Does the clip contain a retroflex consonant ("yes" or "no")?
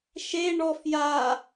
yes